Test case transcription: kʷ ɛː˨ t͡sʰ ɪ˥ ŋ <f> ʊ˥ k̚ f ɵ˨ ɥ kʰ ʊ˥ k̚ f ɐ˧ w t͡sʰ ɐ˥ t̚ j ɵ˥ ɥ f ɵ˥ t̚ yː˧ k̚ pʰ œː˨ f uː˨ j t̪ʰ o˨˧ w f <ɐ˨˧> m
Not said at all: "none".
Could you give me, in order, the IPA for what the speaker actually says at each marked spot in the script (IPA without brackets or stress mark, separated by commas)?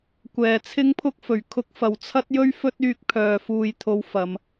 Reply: pʰ, ɐ˨˧